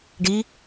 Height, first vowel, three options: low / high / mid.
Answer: high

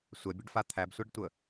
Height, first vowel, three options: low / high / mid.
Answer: mid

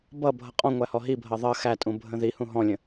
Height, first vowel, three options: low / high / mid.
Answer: mid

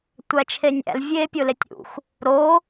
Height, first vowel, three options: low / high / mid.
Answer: low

